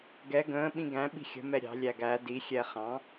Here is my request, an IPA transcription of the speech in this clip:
ɡɛ ɡə̃ː ɓĩɡæ̃ ɓi̤xʲə̤ mɛɾʲɑ̤ lʲæɡæ di xʲɛχɑ̃

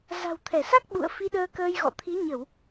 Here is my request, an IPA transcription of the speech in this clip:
za̤˨˩wt̪ʰɛ˧˩sa˦˥k̚ ɓṵ˧˨ə̯ fi˧ɗəː˧kəː˧jɣɔ̰˧˨ t̪ʰi˨˦ɲə˧˩˨w

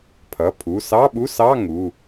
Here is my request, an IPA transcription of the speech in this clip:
pʰʌ˩˧˩pʰu˩˧˩ sɑ˧˥˧ɓu˧˥˧sɑ˧˥˧ ŋu˩˧˩

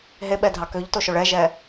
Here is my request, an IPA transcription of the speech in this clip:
ɦeɓɛdʱɑ køʎtoʃoɭ ɛʒɛ

